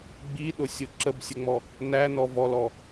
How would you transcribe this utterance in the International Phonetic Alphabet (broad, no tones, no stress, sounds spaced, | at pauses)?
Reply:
ɡ͡b i ɗ ʊ sʲ ʊ ǁ ə b sʲ ə ŋ͡m ɔ | n æ n ɔ v ɔ l ɔ